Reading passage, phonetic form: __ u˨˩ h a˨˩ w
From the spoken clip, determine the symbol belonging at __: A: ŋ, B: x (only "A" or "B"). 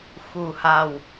B